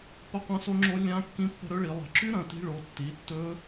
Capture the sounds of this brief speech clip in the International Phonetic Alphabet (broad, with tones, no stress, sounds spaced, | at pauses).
p ɐ˦˥ qʷ ɐ̃˦˥ s o˦˥ ŋ͡ǁ o˦˥ lʲ ã˦˥ kː ĩ˦˥ pː ə̤˦˥ ɾ ɵ˦˥ ɭ i˨˦ lˠ ə̤˨˦ ǁ y˦˥ ɾ ɐ̃˨˦ t i̤˦˥ ɭ o˨˦ tː i˨˦ tː ɵ˦˥